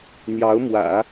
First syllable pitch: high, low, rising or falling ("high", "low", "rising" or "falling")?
rising